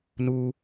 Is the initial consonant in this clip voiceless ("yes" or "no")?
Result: no